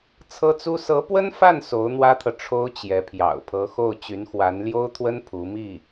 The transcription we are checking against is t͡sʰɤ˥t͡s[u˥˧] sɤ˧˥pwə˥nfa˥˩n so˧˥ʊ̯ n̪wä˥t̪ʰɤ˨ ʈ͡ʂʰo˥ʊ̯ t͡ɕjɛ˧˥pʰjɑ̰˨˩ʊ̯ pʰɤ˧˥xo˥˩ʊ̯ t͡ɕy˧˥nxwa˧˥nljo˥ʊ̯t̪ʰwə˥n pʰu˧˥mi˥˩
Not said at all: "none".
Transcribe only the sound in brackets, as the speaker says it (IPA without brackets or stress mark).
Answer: u˥